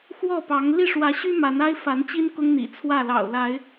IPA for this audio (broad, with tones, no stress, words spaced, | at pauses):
xwɔ˥˨pɑ˨˦ŋ li˥˨ʂwä˨˦ɕy˦ ma˨˦na˦ɪ̯ fa˨˦nt͡ɕi˦n kʊ˦ŋn̪ḭ˨˩ t͡sʰwä˥˨lɑ̰˨˩ʊ̯la˨˦ɪ̯